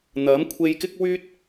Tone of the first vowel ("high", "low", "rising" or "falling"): rising